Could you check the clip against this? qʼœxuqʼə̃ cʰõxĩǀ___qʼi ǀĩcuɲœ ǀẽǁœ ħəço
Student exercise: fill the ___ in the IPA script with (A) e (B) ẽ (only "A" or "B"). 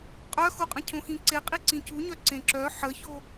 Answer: A